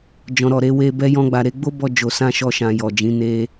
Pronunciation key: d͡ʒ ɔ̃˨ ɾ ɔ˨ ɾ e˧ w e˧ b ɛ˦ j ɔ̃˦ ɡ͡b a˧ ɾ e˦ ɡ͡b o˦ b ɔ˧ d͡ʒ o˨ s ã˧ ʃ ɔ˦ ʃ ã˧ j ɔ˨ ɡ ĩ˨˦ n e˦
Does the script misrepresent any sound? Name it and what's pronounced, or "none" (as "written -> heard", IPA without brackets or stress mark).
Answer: ɡ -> d͡ʒ